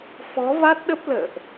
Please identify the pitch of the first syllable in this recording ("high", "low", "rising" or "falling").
rising